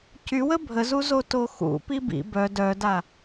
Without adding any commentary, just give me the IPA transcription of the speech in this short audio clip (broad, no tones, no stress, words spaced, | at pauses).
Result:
cywə bʱəzu zotoxṵpi bḭ bœ dœda